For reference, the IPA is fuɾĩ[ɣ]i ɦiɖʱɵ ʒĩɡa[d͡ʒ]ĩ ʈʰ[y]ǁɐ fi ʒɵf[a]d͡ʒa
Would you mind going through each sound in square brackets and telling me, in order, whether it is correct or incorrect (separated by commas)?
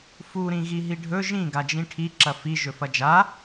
correct, correct, incorrect, incorrect